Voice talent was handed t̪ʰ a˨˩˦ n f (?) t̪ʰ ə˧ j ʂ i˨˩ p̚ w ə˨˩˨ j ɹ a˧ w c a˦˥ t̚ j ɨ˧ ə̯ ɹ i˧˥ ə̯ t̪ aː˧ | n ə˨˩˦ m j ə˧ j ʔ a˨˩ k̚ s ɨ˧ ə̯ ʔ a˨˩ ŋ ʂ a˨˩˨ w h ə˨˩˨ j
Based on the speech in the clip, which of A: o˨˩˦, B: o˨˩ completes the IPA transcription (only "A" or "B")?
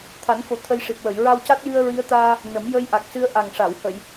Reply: B